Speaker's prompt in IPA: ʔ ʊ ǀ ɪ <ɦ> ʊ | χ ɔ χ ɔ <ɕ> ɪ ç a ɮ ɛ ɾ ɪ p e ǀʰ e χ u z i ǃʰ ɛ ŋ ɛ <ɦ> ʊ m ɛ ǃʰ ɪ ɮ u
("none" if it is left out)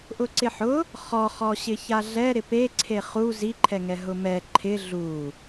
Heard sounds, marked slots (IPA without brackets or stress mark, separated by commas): ħ, ɕ, ɦ